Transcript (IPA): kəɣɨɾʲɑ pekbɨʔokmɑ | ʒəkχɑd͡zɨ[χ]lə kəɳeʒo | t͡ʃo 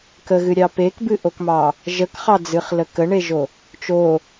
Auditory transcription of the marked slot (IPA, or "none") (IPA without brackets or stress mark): χ